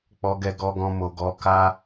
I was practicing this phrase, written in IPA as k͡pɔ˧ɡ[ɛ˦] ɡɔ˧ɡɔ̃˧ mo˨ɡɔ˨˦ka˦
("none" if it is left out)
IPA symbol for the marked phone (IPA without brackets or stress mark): ɛ˧